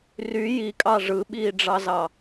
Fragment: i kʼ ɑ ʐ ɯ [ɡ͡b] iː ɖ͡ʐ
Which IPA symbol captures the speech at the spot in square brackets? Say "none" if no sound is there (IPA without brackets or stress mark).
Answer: ɓ